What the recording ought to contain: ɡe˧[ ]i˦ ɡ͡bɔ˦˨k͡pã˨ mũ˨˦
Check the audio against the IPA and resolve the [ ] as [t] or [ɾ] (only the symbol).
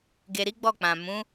ɾ